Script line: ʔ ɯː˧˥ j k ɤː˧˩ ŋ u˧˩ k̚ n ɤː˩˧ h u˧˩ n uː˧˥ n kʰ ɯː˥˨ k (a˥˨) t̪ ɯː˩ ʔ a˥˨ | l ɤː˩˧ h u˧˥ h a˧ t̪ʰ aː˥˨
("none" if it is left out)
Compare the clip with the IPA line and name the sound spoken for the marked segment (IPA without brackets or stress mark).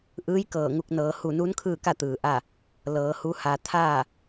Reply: a˥˨